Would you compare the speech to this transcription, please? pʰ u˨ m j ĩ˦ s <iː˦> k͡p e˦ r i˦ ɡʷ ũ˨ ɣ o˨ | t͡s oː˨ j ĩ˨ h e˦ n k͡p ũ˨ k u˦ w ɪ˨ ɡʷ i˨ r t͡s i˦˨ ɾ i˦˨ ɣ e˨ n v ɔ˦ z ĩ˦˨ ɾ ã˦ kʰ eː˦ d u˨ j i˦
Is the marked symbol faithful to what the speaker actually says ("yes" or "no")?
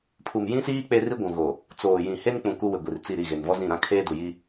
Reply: yes